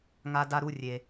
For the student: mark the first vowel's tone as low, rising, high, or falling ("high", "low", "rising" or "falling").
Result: high